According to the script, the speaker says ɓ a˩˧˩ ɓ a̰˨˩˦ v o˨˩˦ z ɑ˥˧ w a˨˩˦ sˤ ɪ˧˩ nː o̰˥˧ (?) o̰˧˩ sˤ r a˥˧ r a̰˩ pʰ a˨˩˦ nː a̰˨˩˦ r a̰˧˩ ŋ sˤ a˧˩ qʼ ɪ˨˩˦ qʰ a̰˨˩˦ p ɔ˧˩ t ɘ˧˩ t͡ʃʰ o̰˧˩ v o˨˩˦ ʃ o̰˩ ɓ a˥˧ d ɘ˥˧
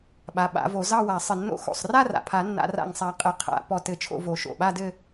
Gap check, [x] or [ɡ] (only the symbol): x